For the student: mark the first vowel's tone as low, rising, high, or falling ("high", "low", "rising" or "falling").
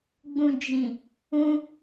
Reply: low